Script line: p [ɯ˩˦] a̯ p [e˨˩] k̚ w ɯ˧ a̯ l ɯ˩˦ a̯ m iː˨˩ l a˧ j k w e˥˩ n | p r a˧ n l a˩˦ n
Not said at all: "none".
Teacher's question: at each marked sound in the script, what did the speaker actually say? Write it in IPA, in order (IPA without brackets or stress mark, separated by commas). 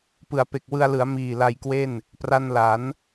ɯ˩˦, e˨˩